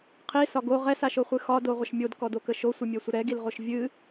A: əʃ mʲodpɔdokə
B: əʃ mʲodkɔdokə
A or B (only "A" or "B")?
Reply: B